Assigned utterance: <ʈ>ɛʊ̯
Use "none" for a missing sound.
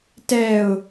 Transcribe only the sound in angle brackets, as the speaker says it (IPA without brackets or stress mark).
t